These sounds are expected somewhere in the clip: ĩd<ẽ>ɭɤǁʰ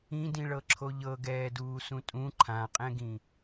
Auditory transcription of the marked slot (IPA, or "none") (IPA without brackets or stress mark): ĩ